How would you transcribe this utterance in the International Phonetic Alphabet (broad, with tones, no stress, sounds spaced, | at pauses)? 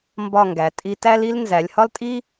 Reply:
m b ɒ˥˧ ŋ ɡ æ˩˧ tʼ i˧ t æ˥ l i˥ l n z æ˩˧ lʲ h ɒ˥ l tʼ i˥